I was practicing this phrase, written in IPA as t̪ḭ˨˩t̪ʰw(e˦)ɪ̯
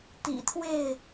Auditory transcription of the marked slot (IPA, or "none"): e˥˨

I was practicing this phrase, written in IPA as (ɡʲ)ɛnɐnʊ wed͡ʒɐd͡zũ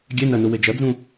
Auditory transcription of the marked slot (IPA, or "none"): ɡʲ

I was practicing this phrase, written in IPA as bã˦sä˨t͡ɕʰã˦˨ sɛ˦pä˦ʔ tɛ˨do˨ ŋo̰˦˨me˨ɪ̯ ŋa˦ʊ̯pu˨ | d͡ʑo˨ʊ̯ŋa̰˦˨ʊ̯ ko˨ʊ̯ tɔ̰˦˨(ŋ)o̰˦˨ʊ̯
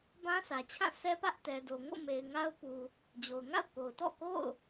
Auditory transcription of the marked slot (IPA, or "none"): k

